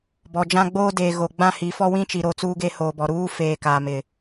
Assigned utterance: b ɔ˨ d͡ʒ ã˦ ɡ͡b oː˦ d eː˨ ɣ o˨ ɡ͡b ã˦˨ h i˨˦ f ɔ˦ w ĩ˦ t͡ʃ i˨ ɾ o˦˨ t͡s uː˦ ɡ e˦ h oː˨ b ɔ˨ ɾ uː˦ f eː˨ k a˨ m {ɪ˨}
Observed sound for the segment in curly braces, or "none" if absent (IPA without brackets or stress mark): ɪ˨